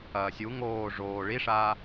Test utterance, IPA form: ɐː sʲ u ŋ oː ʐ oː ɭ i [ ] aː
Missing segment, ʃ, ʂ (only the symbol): ʂ